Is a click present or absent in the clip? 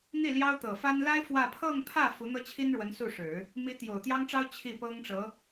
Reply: absent